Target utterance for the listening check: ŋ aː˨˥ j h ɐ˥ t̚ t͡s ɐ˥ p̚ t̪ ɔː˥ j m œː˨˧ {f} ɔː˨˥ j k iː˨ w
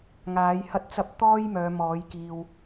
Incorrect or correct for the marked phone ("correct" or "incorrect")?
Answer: incorrect